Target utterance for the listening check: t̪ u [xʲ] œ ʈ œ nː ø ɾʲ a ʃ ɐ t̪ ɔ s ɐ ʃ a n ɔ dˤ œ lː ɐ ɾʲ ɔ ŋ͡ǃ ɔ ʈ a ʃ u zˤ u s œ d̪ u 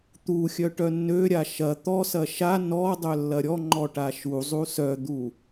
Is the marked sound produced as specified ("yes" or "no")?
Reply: yes